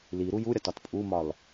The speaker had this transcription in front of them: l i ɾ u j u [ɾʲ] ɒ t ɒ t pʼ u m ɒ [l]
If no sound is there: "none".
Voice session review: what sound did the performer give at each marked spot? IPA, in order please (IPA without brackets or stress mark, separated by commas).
ɾʲ, l